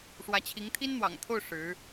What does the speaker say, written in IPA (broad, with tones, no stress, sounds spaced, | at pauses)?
ʂ w ä˧˥ t͡ɕʰ i˧˥ ŋ t̪ʰ i˥ n n̪ w ɑ̰˨˩ ŋ t̪ʰ o˥˩ ʊ̯ ʂ ɻ̩˧˥